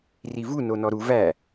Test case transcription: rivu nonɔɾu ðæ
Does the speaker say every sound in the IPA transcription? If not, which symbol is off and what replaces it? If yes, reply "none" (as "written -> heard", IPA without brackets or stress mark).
ð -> v